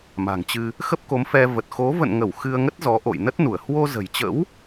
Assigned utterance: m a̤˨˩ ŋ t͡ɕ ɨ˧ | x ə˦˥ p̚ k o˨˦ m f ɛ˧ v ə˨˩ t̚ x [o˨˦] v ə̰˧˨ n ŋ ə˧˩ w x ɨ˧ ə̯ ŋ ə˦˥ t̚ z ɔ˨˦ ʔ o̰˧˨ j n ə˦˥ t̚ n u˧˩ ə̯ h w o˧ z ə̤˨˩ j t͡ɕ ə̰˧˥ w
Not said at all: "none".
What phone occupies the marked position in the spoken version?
o˨˦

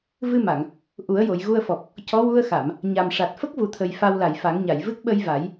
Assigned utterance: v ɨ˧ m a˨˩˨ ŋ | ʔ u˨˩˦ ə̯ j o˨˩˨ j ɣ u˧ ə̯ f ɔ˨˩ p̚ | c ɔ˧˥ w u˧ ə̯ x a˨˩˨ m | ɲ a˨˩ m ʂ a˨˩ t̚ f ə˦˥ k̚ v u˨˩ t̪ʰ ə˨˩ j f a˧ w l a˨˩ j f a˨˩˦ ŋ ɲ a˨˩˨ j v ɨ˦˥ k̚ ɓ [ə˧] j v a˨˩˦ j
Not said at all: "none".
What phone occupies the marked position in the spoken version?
ə˧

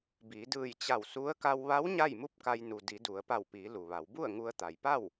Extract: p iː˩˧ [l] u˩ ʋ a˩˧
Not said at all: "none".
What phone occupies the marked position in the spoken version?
l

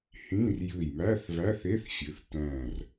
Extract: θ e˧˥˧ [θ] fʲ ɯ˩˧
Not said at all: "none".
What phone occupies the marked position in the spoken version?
θ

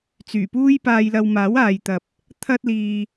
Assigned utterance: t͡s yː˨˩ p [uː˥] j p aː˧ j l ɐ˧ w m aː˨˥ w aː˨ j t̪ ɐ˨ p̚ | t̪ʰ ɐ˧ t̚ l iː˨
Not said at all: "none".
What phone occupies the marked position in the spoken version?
uː˥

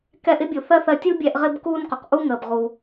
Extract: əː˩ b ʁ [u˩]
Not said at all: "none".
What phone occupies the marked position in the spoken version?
u˩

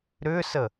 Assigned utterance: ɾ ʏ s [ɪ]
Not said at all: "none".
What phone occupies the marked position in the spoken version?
ə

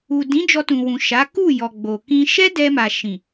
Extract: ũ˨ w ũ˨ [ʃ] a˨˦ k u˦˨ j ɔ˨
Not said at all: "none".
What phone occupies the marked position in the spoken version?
ʃ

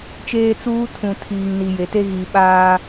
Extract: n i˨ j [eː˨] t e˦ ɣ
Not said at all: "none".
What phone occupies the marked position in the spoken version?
e˨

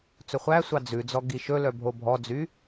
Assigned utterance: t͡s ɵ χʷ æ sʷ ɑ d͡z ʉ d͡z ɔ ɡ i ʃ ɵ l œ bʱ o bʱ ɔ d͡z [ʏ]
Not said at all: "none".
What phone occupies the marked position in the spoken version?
y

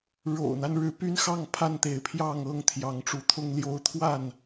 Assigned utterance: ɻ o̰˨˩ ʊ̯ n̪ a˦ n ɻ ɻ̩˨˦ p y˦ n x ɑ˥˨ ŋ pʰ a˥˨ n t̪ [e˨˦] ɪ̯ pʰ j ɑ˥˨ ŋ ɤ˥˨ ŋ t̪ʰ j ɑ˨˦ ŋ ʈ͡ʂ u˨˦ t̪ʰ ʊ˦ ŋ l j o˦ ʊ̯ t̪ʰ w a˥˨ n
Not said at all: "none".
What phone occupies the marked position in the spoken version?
e˨˦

